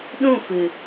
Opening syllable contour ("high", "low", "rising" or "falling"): falling